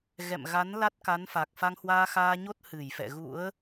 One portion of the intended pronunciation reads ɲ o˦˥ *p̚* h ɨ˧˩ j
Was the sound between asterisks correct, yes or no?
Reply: no